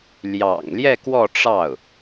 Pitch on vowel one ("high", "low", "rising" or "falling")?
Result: low